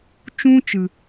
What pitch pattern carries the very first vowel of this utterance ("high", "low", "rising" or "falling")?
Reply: high